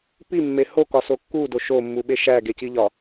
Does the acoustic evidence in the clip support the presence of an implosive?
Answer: yes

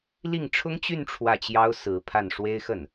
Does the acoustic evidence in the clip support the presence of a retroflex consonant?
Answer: yes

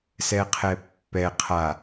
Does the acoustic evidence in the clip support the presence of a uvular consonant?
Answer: yes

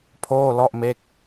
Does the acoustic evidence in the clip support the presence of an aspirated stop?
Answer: yes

